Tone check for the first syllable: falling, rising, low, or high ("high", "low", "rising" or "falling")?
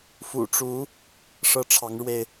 low